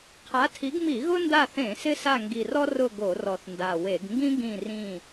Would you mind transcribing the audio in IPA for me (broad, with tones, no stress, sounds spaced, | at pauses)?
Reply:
qʰ a˨˦ tʰ i˨˦ ɡ m i˧˩˧ ɣ ʊ˥ n d a˦˨ θ ẽ˧˩˧ s ɪ˥ s a˦˨ ŋ ɡ i˨˩ r ɔ˥ r ʊ˦˨ ɡ o˧˩˧ r ɔ˨˩ θ n d a˨˩ w e˧˩˧ ɡ ŋ ɡ ĩ˥ ɡ ĩ˦˨ r ĩ˦˨